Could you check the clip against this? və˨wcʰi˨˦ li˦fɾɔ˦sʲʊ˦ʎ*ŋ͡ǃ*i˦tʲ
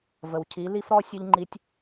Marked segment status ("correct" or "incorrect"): correct